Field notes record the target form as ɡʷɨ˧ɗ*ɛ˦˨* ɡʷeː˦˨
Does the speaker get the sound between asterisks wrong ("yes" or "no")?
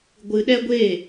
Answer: yes